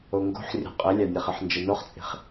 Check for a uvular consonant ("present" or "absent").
present